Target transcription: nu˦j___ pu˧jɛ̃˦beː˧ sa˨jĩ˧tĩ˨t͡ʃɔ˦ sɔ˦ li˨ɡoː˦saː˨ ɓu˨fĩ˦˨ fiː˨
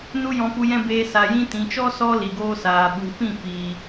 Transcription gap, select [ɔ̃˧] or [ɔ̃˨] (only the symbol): ɔ̃˧